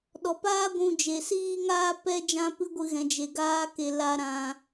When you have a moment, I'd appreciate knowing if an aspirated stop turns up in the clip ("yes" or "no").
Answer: no